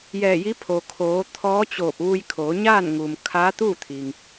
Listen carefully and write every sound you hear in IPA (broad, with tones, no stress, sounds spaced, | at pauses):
j ɛː˧˩ j i˧˥ pʰ oː˩ kʰ oː˩˧ t̪ʰ ɔː˧˥ t͡ɕ oː˧˩ p̚ ʋ u˧ j kʰ oː˩˧ ɲ aː˥˨ n ŋ uː˩ m kʰ aː˧˥ t̪ uː˥˨ t̪ʰ i˩ ŋ